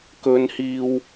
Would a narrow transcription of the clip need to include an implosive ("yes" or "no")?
no